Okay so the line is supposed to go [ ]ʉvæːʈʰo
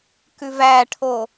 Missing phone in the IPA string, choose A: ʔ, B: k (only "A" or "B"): B